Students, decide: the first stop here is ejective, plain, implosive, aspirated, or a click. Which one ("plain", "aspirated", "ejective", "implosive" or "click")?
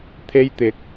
aspirated